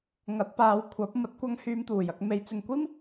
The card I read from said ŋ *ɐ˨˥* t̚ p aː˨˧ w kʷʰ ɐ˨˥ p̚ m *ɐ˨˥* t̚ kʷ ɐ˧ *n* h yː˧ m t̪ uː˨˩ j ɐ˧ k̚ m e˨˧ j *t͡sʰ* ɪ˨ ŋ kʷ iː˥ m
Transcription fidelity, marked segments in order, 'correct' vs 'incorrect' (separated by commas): correct, correct, incorrect, incorrect